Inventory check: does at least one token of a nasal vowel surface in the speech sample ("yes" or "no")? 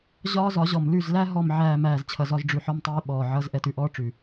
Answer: no